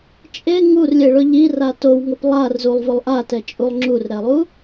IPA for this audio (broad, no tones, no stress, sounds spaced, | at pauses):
t͡ʃʼ e ŋ u r lʲ e ɭ ʊ ʎ i r a t o w ŋ o p lˠ a r z u lˠ v ʊ lˠ ʔ a t ɛ t͡ʃʼ u lˠ ŋ͡ǁ u r ɾ ɛ lˠ u